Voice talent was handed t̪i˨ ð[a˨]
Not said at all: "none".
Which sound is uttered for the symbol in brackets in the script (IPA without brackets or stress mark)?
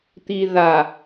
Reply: a˨